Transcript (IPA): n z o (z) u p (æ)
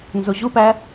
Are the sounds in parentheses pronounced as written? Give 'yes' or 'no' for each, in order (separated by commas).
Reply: no, yes